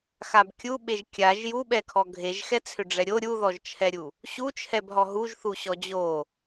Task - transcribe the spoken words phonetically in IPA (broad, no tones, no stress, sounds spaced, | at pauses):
x a b kʲ u ɓ e ʒ kʲ a ʒ j u ɓ ɛ kʰ ɔ ɡʱ e ʒ x ɛ t͡sʰ ʏ ɖ͡ʐ ɛ ɾʲ o ɾʲ u ð ɔ ʒ t͡ʃʰ ɛ ɾʲ u | ɕ u t͡ʃʰ ɛ b ɦ ɔ ɦ u ʒ θ u ɕ ɔ d͡ʑ o